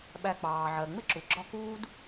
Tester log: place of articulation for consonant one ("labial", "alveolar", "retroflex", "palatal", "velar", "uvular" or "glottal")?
labial